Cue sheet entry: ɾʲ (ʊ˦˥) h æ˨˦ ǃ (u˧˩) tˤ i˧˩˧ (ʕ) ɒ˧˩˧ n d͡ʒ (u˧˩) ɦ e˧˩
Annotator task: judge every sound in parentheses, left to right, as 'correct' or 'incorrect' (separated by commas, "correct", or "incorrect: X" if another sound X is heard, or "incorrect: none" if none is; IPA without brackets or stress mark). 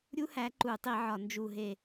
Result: incorrect: u˦˥, incorrect: u˧˩˧, correct, correct